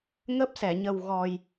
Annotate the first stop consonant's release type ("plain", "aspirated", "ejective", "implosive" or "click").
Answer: plain